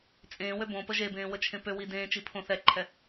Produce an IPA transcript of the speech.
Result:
t͡sʼ ẽː w ø b õ p ə ʒ e b ẽː w ə t͡ʃʰ ẽ p ø w i d ẽː t͡ʃ i pʰ õ θ ɛ ǃʰ ɛ

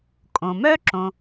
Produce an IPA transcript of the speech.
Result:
kʼ õ˩ m œ˥ ǁ õ˩

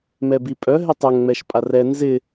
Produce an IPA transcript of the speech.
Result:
m ɛ b i pʼ œ ɦ ɪ tˤ œ ŋ ŋ͡m ɛ ʃ pʼ a r ɛ n z ɪ

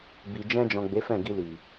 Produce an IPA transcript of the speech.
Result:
b i˨ d͡ʒ ɛ̃˧ d͡ʒ ɔ̃˨ ɡ͡b e˨˦ f ɛ̃˦˨ ɡ i˧ l i˨

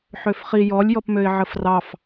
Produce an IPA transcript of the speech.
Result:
ħ ø f χ i j ɔ lʲ j ɔ p m ø ɪ̯ ʕ ə f r ɑ f

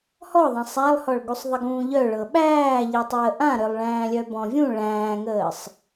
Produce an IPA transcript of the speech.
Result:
h ɔ ðˤ ã sˤ æ lˠ h ɔ ɭ ɡ u sˤ ðˤ ə ɡ ũː ʎ œ ɭ ɤ ɓ æː ʎ i tˤ əː ʔ ã ɾ œ lˠ ɭ æ̃ː lʲ œ b ɔ̃ vʲ ũ ɭ æ̃ː ŋ əː sˤ

